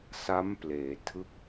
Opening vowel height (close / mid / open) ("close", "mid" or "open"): open